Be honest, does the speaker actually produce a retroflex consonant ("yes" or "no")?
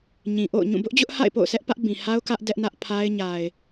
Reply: no